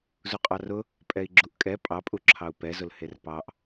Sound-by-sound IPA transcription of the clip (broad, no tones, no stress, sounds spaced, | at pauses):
z u qʼ ɑ r ʊ | pʼ ɛ i̯ ɡ͡ǁ u ʔ kʼ ɛ pʼ ɑ pʼ u ǁʰ ɑ u̯ p ɛ z ʊ l h e r p ɑ ʔ